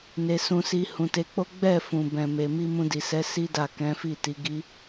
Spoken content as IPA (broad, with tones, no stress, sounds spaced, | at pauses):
n e˧ s ũ˧ s i˧ h ũ˨ t e˨˦ k͡p o˦ ɡ͡b ɛ˦˨ f ũ˨ b ɛ̃˨ m e˨ m i˧ m ũ˧ d i˨ s ɛ˨˦ s i˦ d a˦˨ k ɛ̃˨˦ f i˦˨ t i˨˦ ɡ i˧